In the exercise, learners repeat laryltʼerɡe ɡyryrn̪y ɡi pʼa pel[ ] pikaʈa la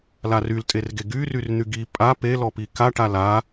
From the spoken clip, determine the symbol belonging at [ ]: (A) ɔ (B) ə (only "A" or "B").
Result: A